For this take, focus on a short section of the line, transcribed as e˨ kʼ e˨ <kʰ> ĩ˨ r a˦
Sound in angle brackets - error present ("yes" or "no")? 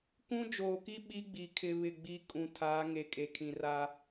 no